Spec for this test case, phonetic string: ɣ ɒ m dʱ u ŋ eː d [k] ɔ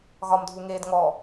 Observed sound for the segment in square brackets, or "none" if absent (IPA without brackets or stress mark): ŋ